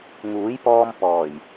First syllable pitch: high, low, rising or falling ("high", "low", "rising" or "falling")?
rising